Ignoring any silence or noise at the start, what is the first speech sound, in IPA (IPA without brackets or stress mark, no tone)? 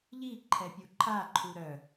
ʎ